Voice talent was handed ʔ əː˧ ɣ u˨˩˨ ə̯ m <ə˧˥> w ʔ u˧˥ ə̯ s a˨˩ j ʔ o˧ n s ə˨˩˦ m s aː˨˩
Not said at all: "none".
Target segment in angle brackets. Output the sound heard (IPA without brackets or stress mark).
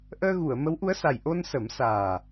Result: ə˧˥